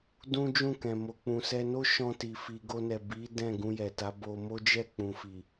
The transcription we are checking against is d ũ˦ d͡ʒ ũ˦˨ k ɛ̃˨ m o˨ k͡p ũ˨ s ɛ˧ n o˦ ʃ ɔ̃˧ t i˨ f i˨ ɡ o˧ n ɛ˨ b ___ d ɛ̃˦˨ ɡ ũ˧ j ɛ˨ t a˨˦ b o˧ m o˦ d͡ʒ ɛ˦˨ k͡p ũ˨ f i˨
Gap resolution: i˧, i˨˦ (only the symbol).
i˨˦